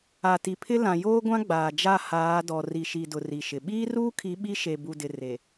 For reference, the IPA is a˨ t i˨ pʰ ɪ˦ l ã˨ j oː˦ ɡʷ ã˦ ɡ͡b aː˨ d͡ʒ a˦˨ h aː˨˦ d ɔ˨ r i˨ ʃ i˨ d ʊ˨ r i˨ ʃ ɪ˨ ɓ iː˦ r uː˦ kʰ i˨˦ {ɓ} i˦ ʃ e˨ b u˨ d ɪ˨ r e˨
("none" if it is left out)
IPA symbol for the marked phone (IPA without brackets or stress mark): ɓ